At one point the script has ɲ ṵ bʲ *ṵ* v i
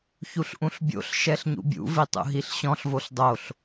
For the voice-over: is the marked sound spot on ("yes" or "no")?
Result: yes